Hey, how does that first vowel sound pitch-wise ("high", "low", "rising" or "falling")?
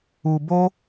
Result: low